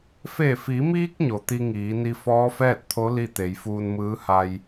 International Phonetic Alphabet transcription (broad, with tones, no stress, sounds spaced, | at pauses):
f e˧˩ f i˩˧ m iː˧ k̚ ɲ o˩ t̪ i˧ ŋ iː˩˧ n i˧ f ɔː˧˥ f ɛː˥˨ t̚ t̪ʰ o˧˥ l i˥˨ t̪ e˩˧ j f uː˧ n m ɯː˧˥ h a˧ j